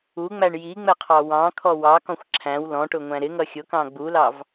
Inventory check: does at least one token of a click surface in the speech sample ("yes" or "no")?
yes